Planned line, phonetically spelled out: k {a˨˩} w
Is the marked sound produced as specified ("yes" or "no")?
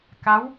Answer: no